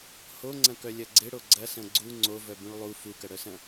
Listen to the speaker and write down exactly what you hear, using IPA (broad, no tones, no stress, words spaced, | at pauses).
hoŋ͡ǀɐ̃kœ lʲɐɡ͡ǀɪɽo ɡ͡ǀɐsɐ̃ ɡ͡ǀu ŋ͡ǀovœ bũɭlˠu fukɐɽœsɐ̃